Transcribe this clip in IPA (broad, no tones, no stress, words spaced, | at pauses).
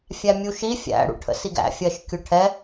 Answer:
fʲæmʲuʃi fʲæ̰ ɽṵʈʰə̰siɡæ̰ fʲɜʃkʲʊʈʰɛ